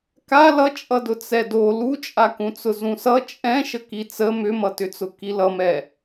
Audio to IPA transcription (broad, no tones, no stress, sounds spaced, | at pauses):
k a l ʌ t͡ʃʼ ʌ d ʊ t͡s ɛ d o l u t͡ʃʼ a k ũ t͡s ʊ z ũ s ʌ t͡ʃʼ ɛ̃ ʃ ə k i t͡s ə m ʏ m ʌ t ʏ t͡s ʊ k i l ʌ m ɛ